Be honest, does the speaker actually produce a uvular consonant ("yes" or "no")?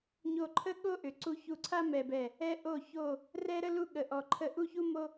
no